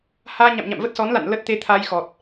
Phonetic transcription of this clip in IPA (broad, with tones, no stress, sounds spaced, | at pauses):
h aː˧ ɲ a̰˧˨ m ɲ a̰˧˨ m v ə˦˥ t̚ s ɔ˨˦ n l a̰˧˨ n l ə˦˥ t̚ t̪ e˧ t̪ʰ a˧ j x ɔ˨˩ t̚